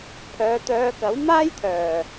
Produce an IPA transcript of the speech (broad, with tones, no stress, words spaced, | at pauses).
pʰœː˨˧t̪œː˧kɐ˨˥w maː˥jt̪ʰœː˨˩